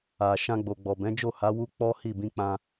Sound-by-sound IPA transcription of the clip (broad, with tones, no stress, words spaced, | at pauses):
a˨ ʃã˧ɡ͡bo˨ɡ͡bɔ˨ bɛ̃˨˦ d͡ʒo˦˨ha˨˦ wu˦k͡pɔ˦hi˦˨ bĩ˧k͡pã˧